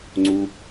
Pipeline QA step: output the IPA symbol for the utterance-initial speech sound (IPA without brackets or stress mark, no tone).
ŋ͡ǀ